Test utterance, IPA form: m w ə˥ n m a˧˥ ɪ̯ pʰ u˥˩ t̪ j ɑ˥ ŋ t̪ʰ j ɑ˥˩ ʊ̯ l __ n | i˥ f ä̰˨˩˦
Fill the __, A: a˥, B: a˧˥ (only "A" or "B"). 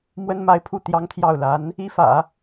B